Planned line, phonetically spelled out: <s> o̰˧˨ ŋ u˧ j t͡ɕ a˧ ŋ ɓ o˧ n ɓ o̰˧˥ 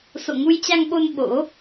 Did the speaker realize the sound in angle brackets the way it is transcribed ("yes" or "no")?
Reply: yes